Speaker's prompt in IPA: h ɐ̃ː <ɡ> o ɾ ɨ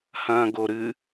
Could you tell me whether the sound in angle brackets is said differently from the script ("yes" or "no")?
no